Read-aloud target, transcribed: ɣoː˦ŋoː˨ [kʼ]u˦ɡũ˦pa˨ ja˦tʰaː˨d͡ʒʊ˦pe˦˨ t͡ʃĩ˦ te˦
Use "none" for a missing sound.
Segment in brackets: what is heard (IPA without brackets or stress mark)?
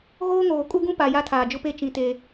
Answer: kʼ